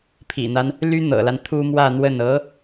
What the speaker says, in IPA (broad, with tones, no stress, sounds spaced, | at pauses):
pʰ ḭ˨˩ n̪ a˦ n | l y˥ n̪ ɤ̰˨˩ l a˦ n t̪ʰ u˥ m w ä˥˧ n̪ w ə˥˩ n ɤ˧˥